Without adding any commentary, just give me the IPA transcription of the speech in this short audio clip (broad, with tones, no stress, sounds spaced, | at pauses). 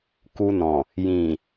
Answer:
k u˧ n ɔ̃˨ | j ĩ˨